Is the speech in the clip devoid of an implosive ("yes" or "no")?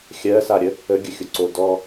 yes